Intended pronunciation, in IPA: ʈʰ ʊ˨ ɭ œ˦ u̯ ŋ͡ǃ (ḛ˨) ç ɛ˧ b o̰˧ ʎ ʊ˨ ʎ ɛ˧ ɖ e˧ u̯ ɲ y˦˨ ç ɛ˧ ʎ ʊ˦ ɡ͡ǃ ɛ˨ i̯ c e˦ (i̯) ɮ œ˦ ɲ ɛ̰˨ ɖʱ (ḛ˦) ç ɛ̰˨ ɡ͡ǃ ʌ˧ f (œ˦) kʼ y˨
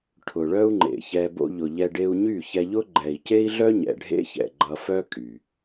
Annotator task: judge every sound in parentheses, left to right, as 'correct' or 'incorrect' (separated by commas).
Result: correct, correct, correct, correct